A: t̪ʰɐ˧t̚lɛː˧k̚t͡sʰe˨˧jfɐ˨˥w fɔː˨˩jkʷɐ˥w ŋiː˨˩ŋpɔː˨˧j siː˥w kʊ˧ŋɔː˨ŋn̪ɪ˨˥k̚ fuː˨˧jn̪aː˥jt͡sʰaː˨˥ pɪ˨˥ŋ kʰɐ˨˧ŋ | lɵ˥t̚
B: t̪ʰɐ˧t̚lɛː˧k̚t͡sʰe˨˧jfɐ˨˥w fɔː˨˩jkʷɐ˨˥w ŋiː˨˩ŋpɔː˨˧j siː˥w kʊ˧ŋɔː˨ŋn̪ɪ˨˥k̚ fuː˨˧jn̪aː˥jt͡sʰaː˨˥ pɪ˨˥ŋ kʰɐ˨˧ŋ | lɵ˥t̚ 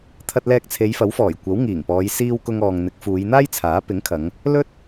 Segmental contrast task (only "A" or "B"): B